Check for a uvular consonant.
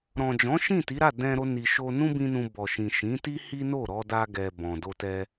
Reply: absent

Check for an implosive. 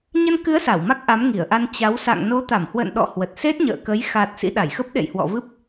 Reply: present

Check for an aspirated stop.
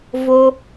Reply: absent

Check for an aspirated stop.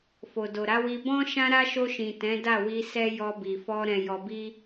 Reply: absent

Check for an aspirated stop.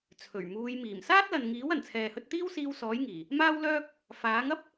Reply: present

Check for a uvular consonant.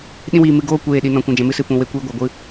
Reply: absent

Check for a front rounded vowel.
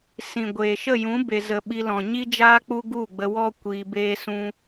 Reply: absent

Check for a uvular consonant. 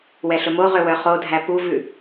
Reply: present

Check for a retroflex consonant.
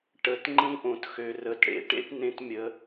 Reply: present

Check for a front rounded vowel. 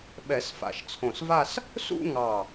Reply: absent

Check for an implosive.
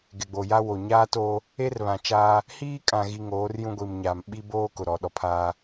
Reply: present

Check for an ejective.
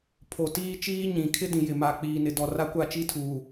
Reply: absent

